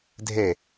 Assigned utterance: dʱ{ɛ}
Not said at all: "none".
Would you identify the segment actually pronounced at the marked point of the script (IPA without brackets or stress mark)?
e